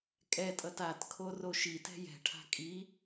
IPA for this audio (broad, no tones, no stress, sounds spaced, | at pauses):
kʼ ɛ tʼ ʌ t a t kʰ o r o ʃ i t ɛ̤ j ɛ̤ ʈʰ a̤ kʼ i